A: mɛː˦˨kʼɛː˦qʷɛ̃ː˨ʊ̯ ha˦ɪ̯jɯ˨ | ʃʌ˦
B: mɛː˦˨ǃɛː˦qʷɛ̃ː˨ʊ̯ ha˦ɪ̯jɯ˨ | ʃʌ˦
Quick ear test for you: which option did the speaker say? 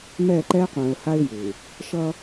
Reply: B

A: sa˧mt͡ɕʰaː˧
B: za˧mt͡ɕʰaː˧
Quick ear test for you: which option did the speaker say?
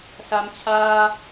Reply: A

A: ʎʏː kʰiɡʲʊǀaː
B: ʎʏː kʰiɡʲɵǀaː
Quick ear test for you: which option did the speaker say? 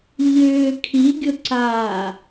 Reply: A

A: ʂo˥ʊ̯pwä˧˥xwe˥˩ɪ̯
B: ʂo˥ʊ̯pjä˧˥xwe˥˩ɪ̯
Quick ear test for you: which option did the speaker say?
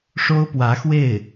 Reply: A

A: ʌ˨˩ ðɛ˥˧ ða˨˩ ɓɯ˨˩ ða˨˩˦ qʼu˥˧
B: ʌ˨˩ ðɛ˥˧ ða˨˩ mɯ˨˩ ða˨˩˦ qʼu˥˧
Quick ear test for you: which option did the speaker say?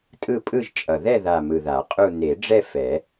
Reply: B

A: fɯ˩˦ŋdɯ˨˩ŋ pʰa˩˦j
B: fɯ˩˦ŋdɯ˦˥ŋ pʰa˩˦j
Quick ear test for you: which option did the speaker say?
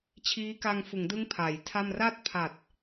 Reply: B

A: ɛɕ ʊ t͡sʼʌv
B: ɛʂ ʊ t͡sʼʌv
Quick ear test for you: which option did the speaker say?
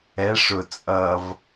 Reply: B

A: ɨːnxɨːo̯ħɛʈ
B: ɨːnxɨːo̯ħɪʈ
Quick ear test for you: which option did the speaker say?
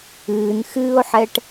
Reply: A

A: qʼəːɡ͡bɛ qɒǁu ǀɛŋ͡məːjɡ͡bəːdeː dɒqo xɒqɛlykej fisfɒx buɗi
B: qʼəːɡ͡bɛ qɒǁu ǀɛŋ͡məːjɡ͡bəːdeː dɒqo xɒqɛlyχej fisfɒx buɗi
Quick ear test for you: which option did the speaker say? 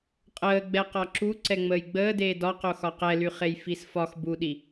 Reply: B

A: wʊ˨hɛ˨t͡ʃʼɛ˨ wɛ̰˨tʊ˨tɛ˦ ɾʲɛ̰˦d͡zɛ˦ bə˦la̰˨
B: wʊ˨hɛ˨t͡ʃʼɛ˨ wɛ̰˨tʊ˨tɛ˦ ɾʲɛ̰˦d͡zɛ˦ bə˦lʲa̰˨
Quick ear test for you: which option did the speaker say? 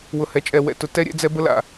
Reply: A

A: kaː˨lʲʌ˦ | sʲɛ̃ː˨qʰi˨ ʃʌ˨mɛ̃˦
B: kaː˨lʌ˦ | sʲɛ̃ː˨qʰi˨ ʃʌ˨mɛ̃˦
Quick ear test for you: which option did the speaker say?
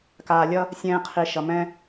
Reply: A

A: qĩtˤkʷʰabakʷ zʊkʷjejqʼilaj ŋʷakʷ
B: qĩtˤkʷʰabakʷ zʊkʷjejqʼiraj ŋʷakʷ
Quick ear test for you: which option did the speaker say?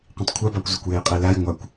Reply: A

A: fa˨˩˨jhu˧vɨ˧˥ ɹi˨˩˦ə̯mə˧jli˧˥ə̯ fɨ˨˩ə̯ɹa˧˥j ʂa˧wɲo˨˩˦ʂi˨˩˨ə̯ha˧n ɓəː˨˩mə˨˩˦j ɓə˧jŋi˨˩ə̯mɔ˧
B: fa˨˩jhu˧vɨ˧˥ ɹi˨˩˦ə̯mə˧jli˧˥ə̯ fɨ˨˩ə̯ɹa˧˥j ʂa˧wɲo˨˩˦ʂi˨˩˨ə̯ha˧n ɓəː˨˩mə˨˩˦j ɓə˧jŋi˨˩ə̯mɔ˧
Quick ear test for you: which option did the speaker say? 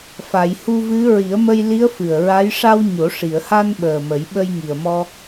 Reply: A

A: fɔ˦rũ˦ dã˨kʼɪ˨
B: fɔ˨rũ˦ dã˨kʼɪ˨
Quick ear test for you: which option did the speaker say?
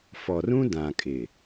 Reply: B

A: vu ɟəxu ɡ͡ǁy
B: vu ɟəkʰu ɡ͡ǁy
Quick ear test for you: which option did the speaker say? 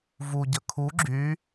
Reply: B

